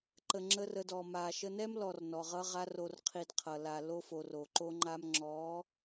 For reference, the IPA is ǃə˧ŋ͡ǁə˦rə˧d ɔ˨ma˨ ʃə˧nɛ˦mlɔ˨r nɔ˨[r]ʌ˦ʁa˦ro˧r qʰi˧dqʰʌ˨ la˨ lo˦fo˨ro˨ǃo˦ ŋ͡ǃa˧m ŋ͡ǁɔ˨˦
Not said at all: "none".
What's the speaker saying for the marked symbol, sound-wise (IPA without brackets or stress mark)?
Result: ʁ